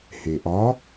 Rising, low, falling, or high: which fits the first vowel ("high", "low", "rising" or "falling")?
low